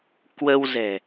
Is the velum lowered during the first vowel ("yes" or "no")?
no